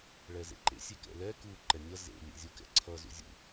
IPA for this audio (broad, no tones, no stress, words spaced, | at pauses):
ɭɛzḛǃḛ sʲekɛ̰lɛ ku ǃɛnʲʌ zḛ lʲḛzʲukɛ̰ǀʰʌ zṵzʲṵ